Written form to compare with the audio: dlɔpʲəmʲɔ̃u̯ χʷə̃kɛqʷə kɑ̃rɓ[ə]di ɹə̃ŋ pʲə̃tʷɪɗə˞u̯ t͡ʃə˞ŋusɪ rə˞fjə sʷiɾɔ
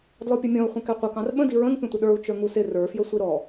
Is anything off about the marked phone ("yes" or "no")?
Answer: yes